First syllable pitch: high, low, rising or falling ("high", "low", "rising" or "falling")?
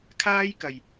high